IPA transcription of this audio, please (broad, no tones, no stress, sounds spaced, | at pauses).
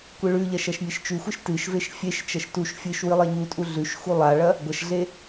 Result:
kʷ ɨ ɭ ʉ ʎ ɐ ʃ ɐ ʃ mʲ e ʃ t͡ʃ ʉ xʷ ɨ ʃ t ɨ ʃ v e ʃ fʲ e ʃ t͡ʃ ɐ ʃ t u ʃ fʲ ɨ ʃ w ɨ lˠ e ɲ u tʼ u ɮ ʉ ʃ x u lˠ a ɭ ɐ | ɡʷ ɐ ʃ ɮ e